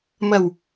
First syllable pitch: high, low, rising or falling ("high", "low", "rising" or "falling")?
low